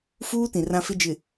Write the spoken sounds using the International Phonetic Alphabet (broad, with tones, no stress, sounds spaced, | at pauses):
f uː˦ t ĩ˨ r ã˦ f ɪ˦ d͡ʒ ɪ˨